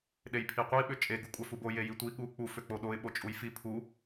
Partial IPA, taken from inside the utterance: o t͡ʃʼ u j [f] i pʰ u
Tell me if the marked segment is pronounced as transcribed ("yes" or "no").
yes